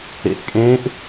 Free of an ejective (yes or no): no